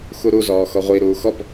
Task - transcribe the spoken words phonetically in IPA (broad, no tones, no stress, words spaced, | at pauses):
xuɾu zɔːxɔʁʷi ɾuːxɔp